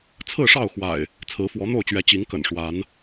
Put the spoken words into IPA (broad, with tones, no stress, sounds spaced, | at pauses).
t͡sʰ ɹ̩˥˨ ʂ ɑ˥˨ ʊ̯ x w a̰˨˩ ɪ̯ | t͡sʰ ɹ̩˨˦ f w ɔ˨˦ n̪ o˥˨ ʊ̯ t͡ɕ ɥ ɛ˨˦ t͡ɕ i˨˦ ŋ k ə̰˨˩ n ʂ w a˨˦ n